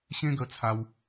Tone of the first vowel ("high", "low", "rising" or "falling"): high